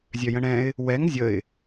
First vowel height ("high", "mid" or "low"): mid